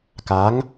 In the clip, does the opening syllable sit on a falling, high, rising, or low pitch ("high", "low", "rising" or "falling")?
rising